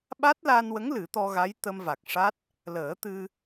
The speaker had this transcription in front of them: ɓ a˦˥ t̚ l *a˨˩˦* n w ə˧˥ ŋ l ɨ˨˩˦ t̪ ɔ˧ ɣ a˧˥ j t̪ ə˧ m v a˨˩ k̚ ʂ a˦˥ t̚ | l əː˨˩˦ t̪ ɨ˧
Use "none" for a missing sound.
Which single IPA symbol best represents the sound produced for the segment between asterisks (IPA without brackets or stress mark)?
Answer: a˧